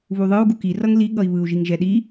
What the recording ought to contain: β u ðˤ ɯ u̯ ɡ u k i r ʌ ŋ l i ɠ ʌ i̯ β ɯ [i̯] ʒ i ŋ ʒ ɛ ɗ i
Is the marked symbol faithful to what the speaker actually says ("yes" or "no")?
no